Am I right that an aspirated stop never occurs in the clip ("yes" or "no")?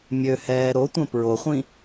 yes